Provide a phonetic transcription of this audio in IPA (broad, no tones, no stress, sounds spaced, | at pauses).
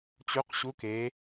t͡ɕ u q ɕ u k e